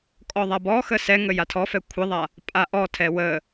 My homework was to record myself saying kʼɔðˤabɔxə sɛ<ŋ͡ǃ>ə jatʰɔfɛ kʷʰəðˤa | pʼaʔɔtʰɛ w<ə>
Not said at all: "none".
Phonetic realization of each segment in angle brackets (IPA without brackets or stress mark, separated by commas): ŋ, ə